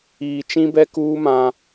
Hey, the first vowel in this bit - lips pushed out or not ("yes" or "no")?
no